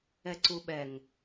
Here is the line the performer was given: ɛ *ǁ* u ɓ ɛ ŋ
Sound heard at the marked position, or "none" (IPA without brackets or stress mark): ǀ